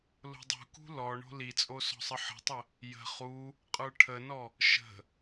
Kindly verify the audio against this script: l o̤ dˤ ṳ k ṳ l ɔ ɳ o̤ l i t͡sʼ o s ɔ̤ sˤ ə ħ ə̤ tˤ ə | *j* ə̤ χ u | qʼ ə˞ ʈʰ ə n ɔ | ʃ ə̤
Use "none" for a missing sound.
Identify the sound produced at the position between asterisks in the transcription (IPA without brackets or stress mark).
j